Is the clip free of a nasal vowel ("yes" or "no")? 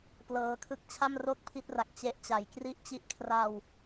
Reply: yes